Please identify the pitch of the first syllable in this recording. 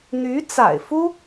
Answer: rising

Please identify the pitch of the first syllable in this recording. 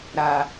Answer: high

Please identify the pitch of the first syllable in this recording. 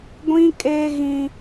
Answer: high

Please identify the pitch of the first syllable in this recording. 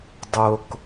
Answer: low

